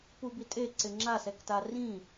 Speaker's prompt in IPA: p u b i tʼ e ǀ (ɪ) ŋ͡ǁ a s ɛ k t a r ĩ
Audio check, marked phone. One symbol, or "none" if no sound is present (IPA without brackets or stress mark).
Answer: ɪ